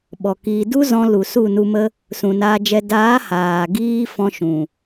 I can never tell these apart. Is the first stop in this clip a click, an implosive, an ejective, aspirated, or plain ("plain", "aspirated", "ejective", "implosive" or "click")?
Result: implosive